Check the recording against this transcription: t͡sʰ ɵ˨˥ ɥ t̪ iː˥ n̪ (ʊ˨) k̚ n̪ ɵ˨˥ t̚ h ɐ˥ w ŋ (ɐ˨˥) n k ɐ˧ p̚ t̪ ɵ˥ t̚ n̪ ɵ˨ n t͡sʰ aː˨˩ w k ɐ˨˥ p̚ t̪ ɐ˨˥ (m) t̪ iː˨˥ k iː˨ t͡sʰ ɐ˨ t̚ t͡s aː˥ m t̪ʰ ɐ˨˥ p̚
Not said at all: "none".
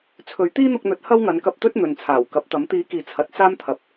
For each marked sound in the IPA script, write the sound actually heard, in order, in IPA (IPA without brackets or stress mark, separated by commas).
ʊ˧, ɐ˨˥, m